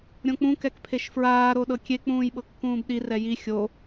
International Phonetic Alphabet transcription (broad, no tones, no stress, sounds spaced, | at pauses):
ɾʲ õ k͡p ũ k ɛ k pʰ e ʃ f ɹ aː ɾ o ɗ ɤ kʲ e k͡p ũː j ɓ ɤ kː ũː b ɗ i r ɛ j i xʲ o